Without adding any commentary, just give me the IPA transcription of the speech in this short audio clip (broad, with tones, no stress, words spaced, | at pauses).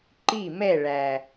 ǃi˦˨mɛ˦˨ɭæ˨